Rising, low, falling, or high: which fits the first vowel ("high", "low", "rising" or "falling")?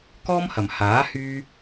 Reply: high